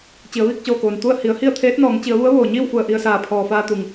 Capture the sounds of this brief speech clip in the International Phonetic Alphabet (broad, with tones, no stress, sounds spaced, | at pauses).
t͡ɕ i˩˧ ə̯ ʋ iː˧ k̚ t͡ɕ oː˧˩ k oː˩ n t̪ u˥˨ ə̯ h i˩˧ ə̯ h i˥˨ ə̯ t̪ʰ eː˧˥ t̚ n ɔː˩˧ ŋ t͡ɕ i˩˧ ə̯ ʋ u˧˥ ə̯ ʋ oː˩ ɲ iː˥˨ w f u˧˩ ə̯ ʔ i˧ ə̯ s aː˧˩ pʰ ɔː˩ f aː˧ t̪ u˩ ŋ